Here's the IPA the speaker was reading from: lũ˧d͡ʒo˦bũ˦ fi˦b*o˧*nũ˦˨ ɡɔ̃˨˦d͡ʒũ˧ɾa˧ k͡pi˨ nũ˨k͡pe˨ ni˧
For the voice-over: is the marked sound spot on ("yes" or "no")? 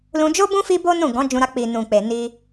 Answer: no